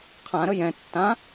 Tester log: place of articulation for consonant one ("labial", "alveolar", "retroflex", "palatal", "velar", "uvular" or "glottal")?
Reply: uvular